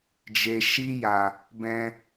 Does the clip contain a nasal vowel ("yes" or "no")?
yes